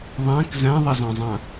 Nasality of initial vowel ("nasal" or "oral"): nasal